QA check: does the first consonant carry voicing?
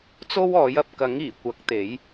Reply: no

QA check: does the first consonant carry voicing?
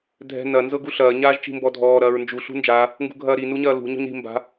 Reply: yes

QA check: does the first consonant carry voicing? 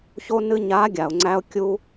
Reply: no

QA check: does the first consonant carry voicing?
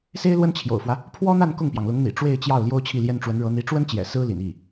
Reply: no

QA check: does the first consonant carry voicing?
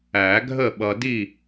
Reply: yes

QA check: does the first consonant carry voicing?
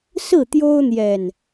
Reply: no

